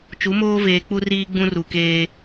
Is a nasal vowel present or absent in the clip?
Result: present